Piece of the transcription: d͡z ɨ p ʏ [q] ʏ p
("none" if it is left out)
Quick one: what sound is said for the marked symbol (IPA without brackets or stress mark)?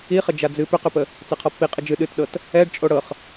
q